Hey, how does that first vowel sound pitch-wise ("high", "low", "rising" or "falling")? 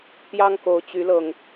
high